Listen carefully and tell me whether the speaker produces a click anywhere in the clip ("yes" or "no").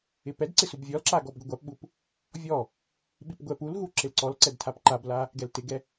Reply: yes